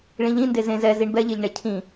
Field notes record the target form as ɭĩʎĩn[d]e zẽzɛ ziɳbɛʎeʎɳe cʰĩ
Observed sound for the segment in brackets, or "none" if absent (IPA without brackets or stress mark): d